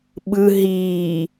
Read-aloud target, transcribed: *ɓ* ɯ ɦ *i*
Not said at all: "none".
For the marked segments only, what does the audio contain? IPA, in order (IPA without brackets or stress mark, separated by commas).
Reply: ɓ, iː